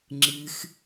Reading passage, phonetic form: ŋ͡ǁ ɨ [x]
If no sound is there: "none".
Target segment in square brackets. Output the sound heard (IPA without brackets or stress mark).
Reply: x